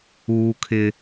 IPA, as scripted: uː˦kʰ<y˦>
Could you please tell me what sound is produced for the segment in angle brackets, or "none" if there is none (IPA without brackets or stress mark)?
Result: ɪ˦